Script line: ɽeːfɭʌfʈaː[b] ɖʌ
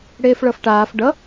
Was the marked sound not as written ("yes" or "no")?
yes